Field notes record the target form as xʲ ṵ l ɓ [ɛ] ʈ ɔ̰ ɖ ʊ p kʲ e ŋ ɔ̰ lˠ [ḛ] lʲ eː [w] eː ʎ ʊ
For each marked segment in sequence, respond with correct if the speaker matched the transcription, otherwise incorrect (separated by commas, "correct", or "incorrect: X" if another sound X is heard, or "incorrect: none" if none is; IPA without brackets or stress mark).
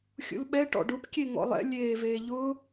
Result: correct, incorrect: ɛ̰, incorrect: v